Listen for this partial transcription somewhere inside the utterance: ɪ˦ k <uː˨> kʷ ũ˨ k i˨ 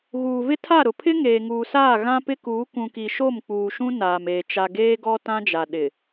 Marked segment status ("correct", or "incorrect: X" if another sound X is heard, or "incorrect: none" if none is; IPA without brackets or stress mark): incorrect: uː˨˦